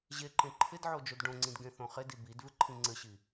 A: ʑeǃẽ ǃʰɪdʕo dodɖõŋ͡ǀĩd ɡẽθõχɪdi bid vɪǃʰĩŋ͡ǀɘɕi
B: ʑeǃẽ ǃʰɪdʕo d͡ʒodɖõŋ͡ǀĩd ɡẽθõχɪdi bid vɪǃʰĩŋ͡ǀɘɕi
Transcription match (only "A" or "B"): B